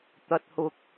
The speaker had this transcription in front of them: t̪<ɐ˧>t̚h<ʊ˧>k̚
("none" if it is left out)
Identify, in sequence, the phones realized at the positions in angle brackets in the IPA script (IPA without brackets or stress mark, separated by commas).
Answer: ɐ˧, ʊ˧